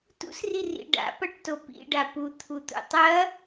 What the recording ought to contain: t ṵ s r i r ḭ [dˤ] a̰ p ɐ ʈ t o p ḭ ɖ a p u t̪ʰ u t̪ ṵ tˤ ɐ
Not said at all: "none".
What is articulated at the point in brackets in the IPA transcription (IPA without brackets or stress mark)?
ɖ